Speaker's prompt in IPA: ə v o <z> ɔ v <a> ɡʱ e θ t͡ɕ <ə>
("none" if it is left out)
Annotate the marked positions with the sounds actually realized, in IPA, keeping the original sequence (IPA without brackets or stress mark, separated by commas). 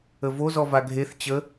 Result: z, a, ə